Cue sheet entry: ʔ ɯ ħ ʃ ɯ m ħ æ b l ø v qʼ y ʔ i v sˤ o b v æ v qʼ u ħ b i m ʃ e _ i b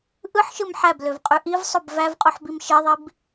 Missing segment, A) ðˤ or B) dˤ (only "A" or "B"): A